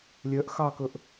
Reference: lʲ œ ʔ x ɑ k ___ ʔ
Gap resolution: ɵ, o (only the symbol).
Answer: ɵ